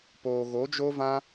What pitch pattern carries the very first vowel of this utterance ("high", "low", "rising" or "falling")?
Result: low